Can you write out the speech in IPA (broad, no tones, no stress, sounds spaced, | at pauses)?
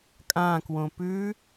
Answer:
kʼ ã k w õ p ʉ